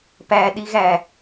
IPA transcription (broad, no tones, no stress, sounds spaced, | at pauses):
p æ ɗ i ɣ æ